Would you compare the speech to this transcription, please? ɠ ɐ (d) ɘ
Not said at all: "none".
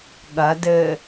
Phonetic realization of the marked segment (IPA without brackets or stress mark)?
d